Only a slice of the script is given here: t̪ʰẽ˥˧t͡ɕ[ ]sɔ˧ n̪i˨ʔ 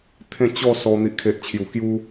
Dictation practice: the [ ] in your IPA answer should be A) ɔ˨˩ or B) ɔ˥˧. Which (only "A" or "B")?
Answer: B